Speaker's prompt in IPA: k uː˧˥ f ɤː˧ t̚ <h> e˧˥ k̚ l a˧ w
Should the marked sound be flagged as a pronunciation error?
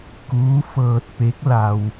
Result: yes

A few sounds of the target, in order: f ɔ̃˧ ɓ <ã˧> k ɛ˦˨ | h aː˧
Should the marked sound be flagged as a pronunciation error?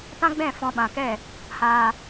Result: yes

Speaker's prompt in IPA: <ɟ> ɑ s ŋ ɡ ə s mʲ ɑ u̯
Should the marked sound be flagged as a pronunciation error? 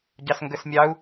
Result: no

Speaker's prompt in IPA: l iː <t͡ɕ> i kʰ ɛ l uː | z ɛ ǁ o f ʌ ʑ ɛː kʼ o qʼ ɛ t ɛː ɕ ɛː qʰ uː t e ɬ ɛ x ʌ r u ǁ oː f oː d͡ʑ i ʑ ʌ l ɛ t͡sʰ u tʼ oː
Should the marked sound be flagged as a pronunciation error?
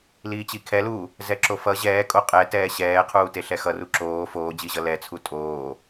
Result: no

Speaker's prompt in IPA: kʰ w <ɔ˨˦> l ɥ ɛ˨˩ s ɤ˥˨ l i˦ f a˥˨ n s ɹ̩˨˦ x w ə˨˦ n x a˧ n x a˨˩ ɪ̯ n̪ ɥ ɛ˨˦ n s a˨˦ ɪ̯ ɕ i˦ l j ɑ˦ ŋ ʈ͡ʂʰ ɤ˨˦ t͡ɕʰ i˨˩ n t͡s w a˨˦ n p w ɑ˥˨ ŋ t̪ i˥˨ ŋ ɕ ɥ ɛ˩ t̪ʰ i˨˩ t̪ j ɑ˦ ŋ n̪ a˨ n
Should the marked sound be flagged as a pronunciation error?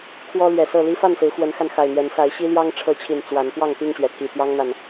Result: yes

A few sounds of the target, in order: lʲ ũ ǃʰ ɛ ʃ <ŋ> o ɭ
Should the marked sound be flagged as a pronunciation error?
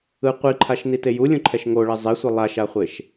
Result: no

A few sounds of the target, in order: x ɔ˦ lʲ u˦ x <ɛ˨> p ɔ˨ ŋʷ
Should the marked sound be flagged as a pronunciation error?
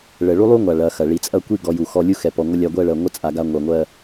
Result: no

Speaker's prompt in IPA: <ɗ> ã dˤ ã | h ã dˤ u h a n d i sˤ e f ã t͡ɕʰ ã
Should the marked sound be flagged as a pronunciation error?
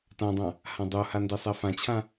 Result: yes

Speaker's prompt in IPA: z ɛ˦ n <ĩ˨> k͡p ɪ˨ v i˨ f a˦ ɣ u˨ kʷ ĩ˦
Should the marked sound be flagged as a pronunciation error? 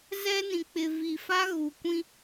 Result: no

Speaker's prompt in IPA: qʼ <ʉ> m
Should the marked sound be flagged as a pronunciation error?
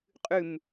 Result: no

